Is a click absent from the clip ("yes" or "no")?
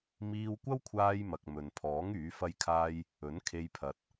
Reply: yes